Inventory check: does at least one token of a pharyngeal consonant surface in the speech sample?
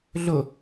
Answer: no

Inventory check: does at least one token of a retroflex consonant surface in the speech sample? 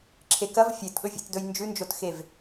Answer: no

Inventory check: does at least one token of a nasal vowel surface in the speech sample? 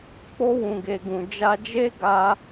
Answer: yes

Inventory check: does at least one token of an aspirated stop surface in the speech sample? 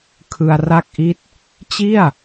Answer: yes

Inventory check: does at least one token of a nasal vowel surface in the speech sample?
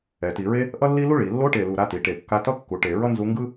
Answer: no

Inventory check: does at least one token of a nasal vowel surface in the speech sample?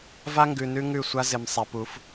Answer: no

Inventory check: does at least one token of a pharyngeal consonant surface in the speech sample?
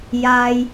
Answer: no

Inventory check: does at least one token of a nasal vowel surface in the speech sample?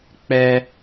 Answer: no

